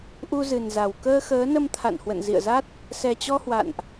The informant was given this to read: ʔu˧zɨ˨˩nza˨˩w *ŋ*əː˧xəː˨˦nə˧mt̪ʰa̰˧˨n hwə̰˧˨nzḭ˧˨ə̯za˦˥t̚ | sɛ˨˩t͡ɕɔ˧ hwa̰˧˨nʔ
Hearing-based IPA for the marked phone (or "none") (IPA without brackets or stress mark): k